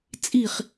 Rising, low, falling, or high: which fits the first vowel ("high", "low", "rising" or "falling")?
falling